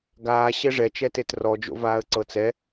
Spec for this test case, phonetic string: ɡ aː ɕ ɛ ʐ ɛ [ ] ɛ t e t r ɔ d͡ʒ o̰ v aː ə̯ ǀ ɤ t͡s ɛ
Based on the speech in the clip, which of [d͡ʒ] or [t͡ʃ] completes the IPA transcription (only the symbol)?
t͡ʃ